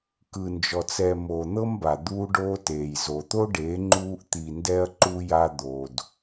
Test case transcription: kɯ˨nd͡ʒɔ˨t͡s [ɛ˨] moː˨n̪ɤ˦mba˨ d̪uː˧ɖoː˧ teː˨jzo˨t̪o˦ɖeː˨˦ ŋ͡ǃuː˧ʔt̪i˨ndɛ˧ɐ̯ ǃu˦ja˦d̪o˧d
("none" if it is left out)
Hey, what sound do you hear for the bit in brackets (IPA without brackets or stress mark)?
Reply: ɛ˨